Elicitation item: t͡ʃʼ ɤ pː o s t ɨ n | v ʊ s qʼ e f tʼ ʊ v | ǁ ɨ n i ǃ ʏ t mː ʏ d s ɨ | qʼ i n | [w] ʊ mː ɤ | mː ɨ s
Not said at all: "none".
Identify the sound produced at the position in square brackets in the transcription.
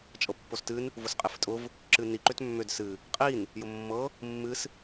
j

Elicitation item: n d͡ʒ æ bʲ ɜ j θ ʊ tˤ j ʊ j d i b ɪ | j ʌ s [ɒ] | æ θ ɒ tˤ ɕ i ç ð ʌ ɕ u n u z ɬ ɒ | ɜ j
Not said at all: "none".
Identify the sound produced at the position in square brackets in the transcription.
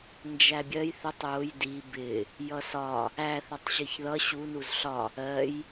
ɒ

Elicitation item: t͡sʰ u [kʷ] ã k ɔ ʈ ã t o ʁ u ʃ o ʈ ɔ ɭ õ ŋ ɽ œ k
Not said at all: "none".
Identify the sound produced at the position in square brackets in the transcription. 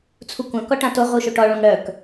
kʷ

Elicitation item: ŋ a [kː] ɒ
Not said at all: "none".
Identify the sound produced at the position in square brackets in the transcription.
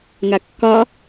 kː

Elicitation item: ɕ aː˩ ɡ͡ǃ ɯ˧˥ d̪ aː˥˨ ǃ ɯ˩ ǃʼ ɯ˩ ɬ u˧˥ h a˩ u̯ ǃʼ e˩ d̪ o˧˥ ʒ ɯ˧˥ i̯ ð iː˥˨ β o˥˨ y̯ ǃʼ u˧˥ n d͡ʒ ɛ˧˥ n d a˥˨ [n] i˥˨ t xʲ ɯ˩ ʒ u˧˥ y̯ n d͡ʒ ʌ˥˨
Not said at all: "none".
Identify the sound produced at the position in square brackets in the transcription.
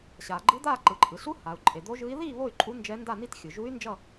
n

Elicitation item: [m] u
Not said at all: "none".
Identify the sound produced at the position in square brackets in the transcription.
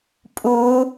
pʼ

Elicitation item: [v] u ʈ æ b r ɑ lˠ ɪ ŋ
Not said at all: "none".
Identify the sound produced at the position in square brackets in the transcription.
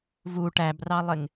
v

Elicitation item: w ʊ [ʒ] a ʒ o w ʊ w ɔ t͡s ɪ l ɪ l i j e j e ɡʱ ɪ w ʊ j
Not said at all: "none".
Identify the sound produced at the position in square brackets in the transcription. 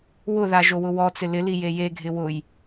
ð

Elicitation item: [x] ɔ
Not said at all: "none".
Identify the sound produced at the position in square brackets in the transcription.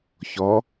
ç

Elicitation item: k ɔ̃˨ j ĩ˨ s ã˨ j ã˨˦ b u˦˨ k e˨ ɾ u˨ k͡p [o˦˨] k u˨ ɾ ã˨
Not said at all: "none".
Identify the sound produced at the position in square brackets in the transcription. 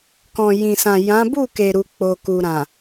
o˨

